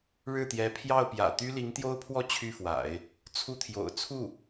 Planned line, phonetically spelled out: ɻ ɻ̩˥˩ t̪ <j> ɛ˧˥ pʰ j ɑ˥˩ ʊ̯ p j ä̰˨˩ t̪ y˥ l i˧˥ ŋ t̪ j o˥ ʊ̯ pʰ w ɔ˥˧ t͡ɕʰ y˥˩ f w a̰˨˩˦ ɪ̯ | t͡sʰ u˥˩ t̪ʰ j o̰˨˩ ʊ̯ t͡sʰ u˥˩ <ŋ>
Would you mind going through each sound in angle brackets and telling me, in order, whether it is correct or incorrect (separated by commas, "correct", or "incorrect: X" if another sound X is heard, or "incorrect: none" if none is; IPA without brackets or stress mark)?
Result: correct, incorrect: none